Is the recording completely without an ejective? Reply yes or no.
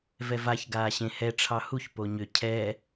yes